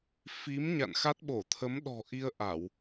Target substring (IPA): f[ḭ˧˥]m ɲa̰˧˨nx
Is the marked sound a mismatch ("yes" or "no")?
yes